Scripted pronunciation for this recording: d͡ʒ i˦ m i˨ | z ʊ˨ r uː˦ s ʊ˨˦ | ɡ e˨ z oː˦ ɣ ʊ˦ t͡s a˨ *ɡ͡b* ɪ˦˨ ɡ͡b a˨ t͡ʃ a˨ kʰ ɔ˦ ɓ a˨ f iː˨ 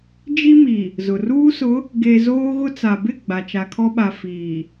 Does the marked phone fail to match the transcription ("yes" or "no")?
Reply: yes